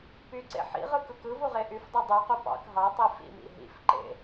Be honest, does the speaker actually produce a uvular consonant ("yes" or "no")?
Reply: yes